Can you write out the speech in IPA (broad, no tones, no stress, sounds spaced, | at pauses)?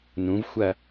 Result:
n ũ v xʷ ɐ